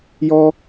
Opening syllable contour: high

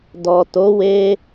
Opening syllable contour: low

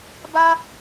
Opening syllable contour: high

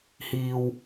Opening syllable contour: low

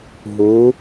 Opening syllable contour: rising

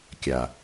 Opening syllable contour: low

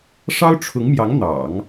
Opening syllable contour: high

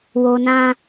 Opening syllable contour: low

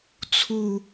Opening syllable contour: falling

